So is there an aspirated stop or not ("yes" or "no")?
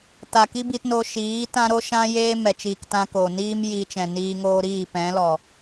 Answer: no